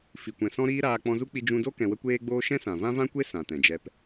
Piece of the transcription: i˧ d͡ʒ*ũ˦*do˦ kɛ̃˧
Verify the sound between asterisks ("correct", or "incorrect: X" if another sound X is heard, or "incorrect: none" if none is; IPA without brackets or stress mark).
incorrect: ũ˧